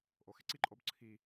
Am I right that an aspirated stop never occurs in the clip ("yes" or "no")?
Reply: no